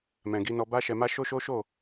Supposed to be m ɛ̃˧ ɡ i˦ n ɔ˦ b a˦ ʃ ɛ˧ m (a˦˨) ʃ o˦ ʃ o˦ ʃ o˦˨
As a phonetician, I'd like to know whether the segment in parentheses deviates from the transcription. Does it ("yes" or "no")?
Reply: yes